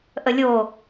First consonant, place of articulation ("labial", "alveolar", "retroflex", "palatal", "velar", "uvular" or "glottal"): glottal